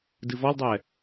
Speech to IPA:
d ɨ v ɔ l dˤ ɛ

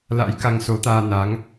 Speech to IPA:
l a̰˧˥ j k a˧ ŋ s o˨˦ t̪ aː˧ n a˨˦ ŋ

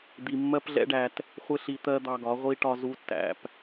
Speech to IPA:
d̪ i˧ mː ɜ˦ p ɮ ɛ̰˦ ɖ æ˧ t | χʷ ɪ˦ ɬ i˧ t̪ ɜ˦ d̪ ɑ˧ ɡ ɒ˨˦ ʁʷ i˦ ʈ ɒ˦ z u˦ tː æ̰˧ p

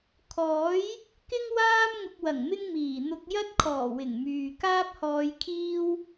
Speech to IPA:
kʰ ɔː˨˥ j | k ɪ˥ ŋ w aː˥ m ŋ ʊ˧ k̚ w ɐ˨˩ ŋ m ɪ˥ ŋ m iː˨˩ n̪ ʊ˧ k̚ j ɐ˥ t̚ kʰ ɔː˨˩ w ɪ˨˩ ŋ m yː˨ k aː˥ p̚ h ɔː˧ j kʰ iː˥ w

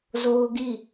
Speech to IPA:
z o˦ ʊ̯ ɡ i˦˨

